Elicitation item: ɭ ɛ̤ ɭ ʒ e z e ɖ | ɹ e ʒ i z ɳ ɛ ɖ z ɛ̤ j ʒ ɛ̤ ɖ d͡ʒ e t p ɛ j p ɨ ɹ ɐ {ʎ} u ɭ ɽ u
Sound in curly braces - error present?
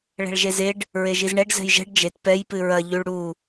no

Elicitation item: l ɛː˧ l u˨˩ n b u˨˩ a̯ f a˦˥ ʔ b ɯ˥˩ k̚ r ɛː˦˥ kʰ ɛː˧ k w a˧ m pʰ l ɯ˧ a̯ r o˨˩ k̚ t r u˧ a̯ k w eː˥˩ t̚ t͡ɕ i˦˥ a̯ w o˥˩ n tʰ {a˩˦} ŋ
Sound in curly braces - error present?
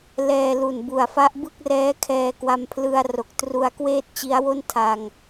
yes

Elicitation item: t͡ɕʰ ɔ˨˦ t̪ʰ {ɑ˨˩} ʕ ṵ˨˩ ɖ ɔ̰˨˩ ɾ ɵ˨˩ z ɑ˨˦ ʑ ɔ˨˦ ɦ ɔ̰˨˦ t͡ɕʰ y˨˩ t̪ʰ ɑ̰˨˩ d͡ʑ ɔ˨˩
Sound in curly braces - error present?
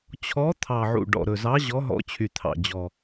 no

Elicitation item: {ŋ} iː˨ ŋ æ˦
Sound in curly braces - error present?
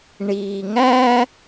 yes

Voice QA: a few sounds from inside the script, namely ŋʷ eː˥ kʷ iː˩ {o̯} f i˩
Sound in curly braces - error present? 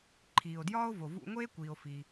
no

